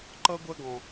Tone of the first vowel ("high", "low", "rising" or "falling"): high